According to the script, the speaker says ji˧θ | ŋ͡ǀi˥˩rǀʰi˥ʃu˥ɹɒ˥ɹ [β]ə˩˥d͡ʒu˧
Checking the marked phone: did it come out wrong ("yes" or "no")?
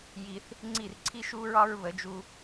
no